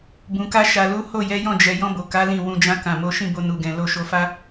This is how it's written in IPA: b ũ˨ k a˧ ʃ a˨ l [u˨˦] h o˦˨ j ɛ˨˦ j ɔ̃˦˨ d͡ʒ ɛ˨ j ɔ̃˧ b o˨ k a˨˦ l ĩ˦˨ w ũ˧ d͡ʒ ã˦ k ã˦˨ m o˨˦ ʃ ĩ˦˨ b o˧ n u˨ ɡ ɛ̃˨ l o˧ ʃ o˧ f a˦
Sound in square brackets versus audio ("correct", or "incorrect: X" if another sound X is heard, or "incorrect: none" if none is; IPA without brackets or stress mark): correct